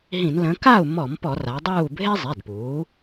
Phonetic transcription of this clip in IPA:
ɦ ĩ˧˩˧ n l ə̃˩˧ k a˥˨ u̯ m ɔ˧˩˧ m p ɔ˧˩˧ r a˩˧ dˤ uː˥˨ bʱ e˦ zˤ e˩˧˩ d p uː˩˧

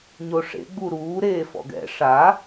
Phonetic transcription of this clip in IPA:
ɲ o ʂ ḛ ɡ͡b u ɾ uː ɾ eː f ɔ̰ ɡ ɛ̰ ʂ a

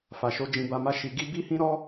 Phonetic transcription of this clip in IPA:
f a˨ ʃ o˧ d͡ʒ ĩ˧ b a˧ m a˦ ʃ i˧ ɡ i˦ b i˦ h ĩ˦ ɾ ɔ˦

